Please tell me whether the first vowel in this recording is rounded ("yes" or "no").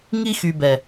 no